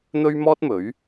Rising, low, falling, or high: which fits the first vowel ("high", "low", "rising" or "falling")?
high